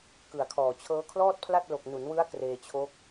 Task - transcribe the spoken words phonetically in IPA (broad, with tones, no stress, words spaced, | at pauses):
kɯ˨˩a̯kʰɔː˨˩ t͡ɕʰɤː˦˥kʰlɔː˥˩t̚pʰla˥˩t̚ lo˨˩k̚nu˩˦nwɯ˦˥a̯ kreː˧t͡ɕʰo˦˥k̚